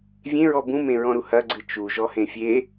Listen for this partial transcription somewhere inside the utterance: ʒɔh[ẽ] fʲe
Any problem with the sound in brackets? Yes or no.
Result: no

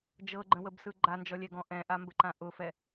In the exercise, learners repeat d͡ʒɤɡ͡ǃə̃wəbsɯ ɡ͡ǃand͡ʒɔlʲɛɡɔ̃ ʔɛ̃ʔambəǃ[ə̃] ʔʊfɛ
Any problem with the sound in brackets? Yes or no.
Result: yes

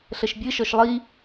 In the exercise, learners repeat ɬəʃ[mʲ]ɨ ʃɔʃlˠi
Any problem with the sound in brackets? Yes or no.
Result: yes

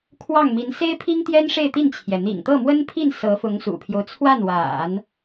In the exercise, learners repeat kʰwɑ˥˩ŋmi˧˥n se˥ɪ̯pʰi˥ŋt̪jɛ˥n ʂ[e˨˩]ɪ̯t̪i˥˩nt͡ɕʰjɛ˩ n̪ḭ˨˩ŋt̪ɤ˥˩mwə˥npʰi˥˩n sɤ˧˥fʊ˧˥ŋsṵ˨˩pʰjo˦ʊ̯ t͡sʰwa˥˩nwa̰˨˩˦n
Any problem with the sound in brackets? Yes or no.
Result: yes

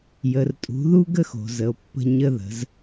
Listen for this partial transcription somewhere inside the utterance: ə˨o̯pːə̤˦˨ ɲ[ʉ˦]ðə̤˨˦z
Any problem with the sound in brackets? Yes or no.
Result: yes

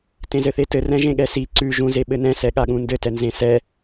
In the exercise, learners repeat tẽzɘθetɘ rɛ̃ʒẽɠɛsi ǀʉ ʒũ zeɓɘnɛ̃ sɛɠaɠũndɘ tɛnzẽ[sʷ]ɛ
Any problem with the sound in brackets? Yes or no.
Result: yes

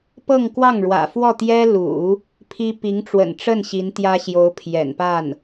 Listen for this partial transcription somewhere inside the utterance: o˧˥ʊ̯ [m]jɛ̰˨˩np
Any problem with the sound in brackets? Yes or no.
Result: yes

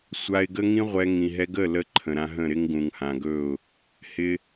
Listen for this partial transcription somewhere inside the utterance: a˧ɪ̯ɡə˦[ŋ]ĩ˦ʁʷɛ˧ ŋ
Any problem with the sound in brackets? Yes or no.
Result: no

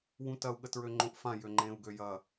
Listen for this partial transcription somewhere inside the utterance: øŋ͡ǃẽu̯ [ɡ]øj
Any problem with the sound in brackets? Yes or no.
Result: no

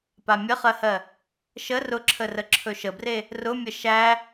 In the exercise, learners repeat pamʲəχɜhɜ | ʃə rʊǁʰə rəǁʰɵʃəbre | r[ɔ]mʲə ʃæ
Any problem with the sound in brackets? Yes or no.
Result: yes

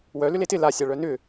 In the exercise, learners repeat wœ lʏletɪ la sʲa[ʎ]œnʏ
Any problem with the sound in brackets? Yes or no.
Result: yes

